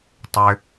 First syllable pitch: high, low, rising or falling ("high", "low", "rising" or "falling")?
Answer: low